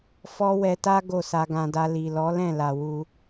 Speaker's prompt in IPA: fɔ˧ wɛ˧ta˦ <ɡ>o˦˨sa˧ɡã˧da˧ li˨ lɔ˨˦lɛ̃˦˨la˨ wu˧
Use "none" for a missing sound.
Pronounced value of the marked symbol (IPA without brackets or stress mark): ɡ